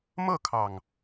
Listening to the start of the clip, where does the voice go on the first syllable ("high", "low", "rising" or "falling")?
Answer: falling